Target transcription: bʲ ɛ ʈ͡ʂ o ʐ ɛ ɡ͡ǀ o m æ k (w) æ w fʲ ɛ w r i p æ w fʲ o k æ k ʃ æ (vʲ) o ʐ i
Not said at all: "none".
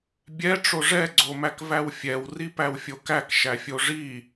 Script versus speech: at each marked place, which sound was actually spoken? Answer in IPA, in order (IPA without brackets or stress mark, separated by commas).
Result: v, fʲ